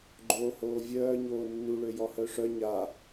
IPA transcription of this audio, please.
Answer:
ɡ͡ǃ oː h oː vʲ œː ɲ oː nː u ɭ ø j ɔ h œ ʂ œ ɲ a

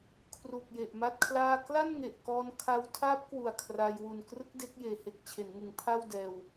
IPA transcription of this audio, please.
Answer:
kʰ r u˨˩ k̚ j e˨˩ ʔ m a˥˩ t̚ kʰ l aː˥˩ k l a˥˩ n ŋ e˨˩ ʔ k ɔː˧ n kʰ a˦˥ w tʰ aː˦˥ p̚ k w u˨˩ a̯ kʰ r a˧ j w u˨˩ n k r ɯ˦˥ k̚ d e˦˥ k̚ j eː˩˦ h e˨˩ k̚ t͡ɕʰ e˩˦ n ŋ ɯ˩˦ ŋ pʰ a˥˩ w d ɛː˧ w

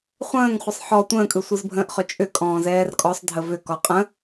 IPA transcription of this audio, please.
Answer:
χʷ ə̃ː ŋ χʷ ə sˤ ħ ɔ tʷ ə̃ː kʼ ɯ sʷ ɯ z bʱ ə̃ː ʔ χ ʏ t͡ʃʼ ʏ kʼ ɔ̃ː z ɛː r kʼ ɔ sˤ dʱ ə v ʏ k ɔ qʼ ə̃

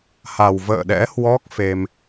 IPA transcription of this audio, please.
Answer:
h a˨˩ w v ə̰ː˧˨ ɗ ɛ̰˧˥ h w ɔ˦˥ k̚ f e˧ m

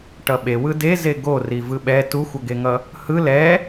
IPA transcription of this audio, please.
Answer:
ʈ ʌ ɓ e w ɯ d e z e ɡ o r i v ɯ ɓ ɛ t u xʷ ʌ ɡ e ŋ ʌ | h ɯ l ɛ

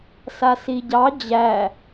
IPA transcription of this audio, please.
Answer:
s a s i ɟ ɑ d͡ʑ æ

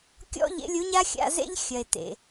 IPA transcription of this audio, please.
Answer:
kʲ ɔ̰˦ ʎ ḛ˨˦ lʲ u˨˦ ɲ a˦ xʲ a̰˧ z ḛ˦ ʎ xʲ ɐ˨ e̯ t ḛ˨

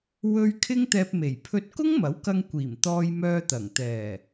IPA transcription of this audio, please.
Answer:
w ɵ˧ ɥ kʰ ɪ˥ ŋ t̪ ɛː˧ p̚ m e˨˩ j pʰ ɵ˧ t̚ k ʊ˥ ŋ m ɐ˨˥ w k ɐ˧ ŋ kʷ iː˨˩ m t̪ ɔː˧ j m œː˧ t̪ ɐ˨˩ ŋ t̪ ɛː˨˩

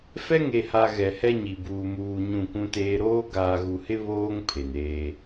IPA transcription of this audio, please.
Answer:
f ɛ˦ ŋ e˨ h a˨ ɣ ɛ˨ h ɛ˦ ɲ i˨ b uː˨ m uː˨ ɲ ũ˦˨ kʷ ũ˦ t eː˦ ɾ oː˦ ɡ aː˨ ɣ u˨ h ɪ˦ β oː˦ ŋ pʰ e˨ n eː˦

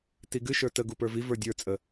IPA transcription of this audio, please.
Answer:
t i ɡ ɨ ʃ ə˞ t ə ɡ u p ə˞ v i v ə˞ dʲ ə˞ t͡sʼ ə

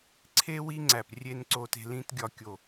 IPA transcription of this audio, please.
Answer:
ǀʰ e˦ w i˦ ŋ͡ǀ æ˨ p rʲ e˦ n ǀ o˦ t e̤˦ l ĩ˦ t ɡʲ ɒ˦ kʲ o˦˨

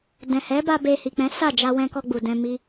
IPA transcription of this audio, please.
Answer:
d ɛ̃˨ h ɛ˨˦ b a˧ b e˧ h i˨ k͡p ɛ̃˨˦ s a˦˨ d͡ʒ a˧ w ɛ̃˧ k ɔ˧ ɡ͡b u˨ d ɛ̃˧ m i˦

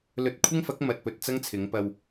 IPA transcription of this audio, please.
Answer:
l ɵ˧ t̚ kʷʰ ɪ˥ ŋ f ɐ˨˥ k̚ m ɐ˨ t̚ p ɵ˧ t̚ t͡s ɐ˥ ŋ t͡sʰ ɪ˨˧ ŋ p ɐ˧ w

